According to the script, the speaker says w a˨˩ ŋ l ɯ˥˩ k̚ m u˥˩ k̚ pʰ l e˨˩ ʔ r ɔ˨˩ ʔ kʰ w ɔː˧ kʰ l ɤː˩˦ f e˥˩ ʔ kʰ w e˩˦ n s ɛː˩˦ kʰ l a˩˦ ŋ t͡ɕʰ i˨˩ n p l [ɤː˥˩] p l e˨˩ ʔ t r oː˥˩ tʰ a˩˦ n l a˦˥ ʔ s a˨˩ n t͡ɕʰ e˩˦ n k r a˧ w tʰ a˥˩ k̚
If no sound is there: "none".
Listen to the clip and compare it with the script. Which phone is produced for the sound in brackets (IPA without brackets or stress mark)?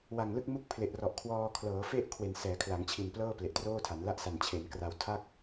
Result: ɤː˥˩